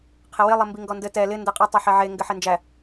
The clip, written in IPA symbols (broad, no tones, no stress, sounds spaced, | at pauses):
qʰ ɪ w ɪ lˠ ɘ m b i ŋ ɡ ɔ n d ɘ t ɛ l ɪ n d ɛ qʼ e tˤ e ħ ɛ ʕ e ŋ ɡ ɘ ħ ɛ n d͡ʒ æ